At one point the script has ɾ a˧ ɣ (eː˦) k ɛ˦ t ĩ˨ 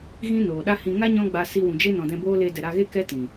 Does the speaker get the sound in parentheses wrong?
yes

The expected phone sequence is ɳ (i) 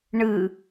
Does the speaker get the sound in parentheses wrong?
yes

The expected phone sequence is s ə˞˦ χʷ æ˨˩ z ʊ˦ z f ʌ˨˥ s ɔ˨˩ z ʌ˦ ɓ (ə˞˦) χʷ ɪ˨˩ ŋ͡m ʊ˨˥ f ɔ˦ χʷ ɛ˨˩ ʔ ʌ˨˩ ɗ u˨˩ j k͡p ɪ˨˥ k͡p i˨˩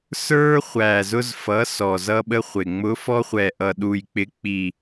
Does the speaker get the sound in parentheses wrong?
yes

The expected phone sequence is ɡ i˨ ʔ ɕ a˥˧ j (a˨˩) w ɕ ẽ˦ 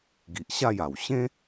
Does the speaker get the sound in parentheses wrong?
no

